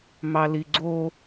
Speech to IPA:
m ɑ l i ɡ͡ǀ o

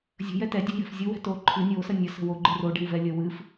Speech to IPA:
zʲ ə̤ j ɛ t ɛ dʲ ɛ̤ j ɛ̤ f zʲ o w ɛ̤ t o ǃʰ ɨ nʲ o s ə nʲ ə s ə̤ w o ɡ͡ǃ ɨ r o ɖ ɛ̤ w v ɛ lʲ ə w ɨ f

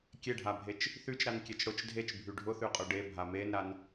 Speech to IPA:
kʲ e ɖʱ a bʱ e t͡ʃ | θ y t͡ʃ ɾ a n kʲ e t͡ʃ ɽ ʊ t͡ʃ dʱ e t͡ʃ bʱ y ɖʱ ʊ θ y qʼ ʊ ɖ e bʱ a m e n ɾ a n

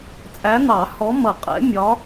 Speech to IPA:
t͡sʼ æ˨˦ n̪ ɑ˨˩˦ h ɔ˨˦ m ʌ˨˩˦ qʼ ɛ̰˨˦ mʲ ɒ˨˦

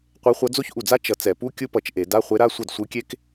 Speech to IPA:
qʷ e˧˥ χʷ ʌ˧˥ d͡z o˥ ç ʔ u˧˩ d͡z a˥ t͡ʃ ʌ˧˩ t͡s ɛ˧˩˧ p u˧˥˧ kʲ ɯ˥ p ʌ˧˩ t͡ʃ ʔ e˧˩˧ d a˧˥˧ χʷ e˧˥ ɾ a˧˥˧ sʷ ʌ˥˩ d sʷ ɯ˧˥ kʲ e˥ k

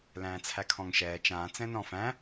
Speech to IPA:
l æ̃ː t͡sʰ æ kʰ ɔ̃ ŋ ʃ ɛː t͡ʃ ãː t͡s ɛ̃ n ɔ̃ f æ̃

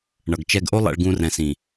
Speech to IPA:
ɳ ʌ˨ ɡ t͡ʃ ɛ˧ ɡ ʔ o˦ lˠ ɛ̰˧ ɭ ɡ ũ˧ r ɛ̃˨ s ĩ˨

